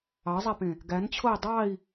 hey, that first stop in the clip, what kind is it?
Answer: plain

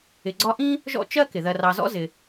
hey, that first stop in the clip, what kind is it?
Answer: click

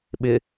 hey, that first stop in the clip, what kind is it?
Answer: implosive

